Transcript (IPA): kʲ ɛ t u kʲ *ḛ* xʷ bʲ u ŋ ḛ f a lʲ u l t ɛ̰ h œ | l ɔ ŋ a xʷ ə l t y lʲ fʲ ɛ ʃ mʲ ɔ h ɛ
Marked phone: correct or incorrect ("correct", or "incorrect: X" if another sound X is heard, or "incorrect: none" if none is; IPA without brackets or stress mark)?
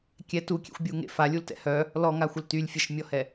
correct